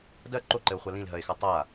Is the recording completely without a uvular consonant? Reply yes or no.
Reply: no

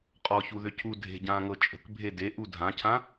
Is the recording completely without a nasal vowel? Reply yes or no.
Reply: no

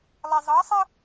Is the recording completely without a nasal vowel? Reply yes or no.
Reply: yes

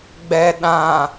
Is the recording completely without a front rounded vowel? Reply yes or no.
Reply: yes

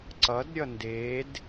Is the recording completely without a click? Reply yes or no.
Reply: no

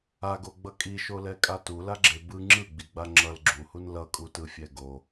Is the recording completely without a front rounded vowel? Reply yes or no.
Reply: yes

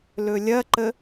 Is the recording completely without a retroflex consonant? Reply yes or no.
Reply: yes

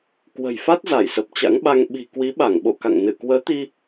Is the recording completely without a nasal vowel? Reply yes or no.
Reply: yes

